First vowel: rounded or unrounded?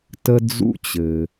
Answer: unrounded